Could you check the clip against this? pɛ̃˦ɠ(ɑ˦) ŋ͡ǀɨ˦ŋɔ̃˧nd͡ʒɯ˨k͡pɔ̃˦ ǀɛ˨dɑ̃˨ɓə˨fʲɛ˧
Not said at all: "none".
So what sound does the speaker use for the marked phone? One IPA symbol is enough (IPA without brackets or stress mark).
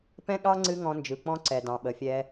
ɑ˦